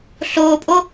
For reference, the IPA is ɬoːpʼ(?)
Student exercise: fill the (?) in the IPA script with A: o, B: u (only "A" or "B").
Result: A